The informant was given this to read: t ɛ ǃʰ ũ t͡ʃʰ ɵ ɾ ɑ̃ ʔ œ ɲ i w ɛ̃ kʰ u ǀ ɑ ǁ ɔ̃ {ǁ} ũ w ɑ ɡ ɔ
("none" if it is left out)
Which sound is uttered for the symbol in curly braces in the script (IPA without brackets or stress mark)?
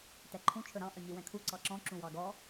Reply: ǁ